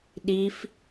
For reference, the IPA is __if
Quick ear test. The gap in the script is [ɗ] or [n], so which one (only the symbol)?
ɗ